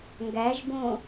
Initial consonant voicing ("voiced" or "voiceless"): voiced